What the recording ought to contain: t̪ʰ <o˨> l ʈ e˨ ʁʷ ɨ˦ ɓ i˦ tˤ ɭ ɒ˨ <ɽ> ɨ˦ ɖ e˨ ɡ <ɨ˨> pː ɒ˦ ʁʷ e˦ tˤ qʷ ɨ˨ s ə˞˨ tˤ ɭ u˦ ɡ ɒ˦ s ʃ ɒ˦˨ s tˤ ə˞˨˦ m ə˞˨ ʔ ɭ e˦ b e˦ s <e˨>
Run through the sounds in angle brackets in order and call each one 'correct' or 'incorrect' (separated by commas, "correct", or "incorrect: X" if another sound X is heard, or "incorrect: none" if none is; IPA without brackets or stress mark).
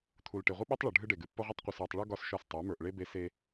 incorrect: u˨, incorrect: ɖʱ, correct, incorrect: e˦